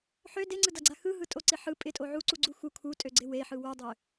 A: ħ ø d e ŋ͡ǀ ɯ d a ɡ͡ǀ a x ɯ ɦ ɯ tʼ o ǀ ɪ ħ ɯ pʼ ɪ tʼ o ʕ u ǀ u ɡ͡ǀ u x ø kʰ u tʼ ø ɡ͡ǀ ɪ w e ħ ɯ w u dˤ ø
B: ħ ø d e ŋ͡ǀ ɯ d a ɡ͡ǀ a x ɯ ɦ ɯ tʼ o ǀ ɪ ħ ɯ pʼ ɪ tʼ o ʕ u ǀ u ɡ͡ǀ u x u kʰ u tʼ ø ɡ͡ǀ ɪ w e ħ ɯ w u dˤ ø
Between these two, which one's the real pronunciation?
B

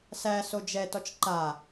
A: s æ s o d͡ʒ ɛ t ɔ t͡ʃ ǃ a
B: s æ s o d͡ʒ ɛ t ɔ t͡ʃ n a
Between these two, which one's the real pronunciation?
A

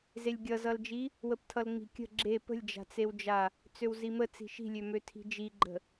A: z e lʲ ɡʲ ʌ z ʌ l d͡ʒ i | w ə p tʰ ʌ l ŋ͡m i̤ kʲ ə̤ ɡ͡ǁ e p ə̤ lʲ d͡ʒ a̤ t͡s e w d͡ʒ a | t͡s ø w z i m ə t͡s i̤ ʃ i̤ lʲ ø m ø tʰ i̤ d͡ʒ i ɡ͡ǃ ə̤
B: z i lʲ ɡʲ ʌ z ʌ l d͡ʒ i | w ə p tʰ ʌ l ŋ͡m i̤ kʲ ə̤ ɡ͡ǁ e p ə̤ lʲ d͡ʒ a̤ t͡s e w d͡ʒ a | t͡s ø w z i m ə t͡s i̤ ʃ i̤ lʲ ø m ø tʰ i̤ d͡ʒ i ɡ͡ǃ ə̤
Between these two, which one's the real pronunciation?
A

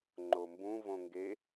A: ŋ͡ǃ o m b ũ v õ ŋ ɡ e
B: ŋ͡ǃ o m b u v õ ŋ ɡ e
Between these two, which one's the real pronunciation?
A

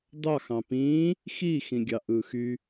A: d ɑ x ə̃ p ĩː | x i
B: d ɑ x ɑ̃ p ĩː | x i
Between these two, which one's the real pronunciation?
B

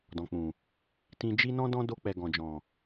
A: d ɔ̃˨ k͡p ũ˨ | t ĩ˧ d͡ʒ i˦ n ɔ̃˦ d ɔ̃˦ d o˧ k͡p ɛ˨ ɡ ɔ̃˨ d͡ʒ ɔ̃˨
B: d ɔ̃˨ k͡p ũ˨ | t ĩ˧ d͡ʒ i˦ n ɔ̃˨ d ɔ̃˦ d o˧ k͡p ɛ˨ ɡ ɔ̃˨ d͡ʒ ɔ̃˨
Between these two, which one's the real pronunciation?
A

